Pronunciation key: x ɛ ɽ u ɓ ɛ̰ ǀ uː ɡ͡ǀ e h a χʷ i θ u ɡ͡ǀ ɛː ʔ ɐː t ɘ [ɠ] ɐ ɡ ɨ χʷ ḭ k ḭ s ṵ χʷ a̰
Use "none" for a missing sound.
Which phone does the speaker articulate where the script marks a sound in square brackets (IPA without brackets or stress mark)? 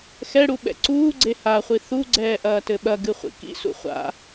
ɓ